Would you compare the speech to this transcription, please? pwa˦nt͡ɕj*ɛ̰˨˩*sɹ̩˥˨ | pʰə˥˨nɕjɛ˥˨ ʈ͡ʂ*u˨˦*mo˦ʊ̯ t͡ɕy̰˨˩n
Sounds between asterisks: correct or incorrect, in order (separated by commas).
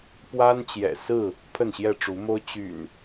correct, correct